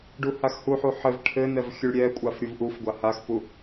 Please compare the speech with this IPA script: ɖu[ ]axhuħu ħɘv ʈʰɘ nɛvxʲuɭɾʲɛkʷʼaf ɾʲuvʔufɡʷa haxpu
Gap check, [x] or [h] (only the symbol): h